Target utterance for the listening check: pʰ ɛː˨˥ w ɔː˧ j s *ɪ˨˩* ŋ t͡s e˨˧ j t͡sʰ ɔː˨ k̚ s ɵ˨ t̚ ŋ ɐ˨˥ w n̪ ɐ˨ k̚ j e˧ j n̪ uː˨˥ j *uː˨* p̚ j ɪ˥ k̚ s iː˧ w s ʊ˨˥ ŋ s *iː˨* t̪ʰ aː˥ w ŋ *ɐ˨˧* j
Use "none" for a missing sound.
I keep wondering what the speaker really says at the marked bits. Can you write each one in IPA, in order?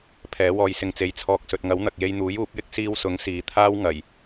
ɪ˧, uː˨˥, iː˨, ɐ˨˩

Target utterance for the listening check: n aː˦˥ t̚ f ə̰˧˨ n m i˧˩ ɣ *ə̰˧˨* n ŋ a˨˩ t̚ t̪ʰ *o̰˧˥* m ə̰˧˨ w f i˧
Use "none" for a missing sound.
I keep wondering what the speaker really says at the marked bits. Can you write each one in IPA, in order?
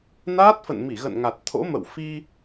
ə̰˧˨, o̰˧˥

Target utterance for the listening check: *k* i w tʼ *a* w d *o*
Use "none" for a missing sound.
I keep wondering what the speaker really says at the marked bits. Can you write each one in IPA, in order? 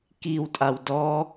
k, a, ɔ

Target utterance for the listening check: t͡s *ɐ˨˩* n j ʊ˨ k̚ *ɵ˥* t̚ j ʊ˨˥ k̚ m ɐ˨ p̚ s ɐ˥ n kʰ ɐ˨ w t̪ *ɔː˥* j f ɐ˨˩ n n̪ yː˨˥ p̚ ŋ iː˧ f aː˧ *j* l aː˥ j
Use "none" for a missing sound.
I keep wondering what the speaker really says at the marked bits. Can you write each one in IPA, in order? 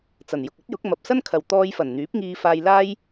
ɐ˨˩, ɵ˥, ɔː˧, j

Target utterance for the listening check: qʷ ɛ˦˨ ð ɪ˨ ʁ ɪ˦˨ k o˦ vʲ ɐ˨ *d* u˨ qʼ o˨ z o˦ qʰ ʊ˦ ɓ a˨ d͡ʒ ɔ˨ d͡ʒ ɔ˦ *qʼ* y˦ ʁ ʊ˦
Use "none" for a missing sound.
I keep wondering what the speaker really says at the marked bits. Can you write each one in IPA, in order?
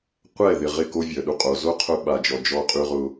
ɗ, qʼ

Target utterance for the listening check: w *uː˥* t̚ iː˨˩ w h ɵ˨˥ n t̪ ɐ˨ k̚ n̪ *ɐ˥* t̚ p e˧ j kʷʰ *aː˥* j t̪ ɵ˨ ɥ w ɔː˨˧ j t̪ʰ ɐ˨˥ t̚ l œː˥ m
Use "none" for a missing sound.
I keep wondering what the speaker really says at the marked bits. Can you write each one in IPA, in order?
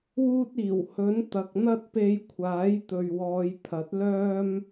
uː˥, ɐ˥, aː˨˥

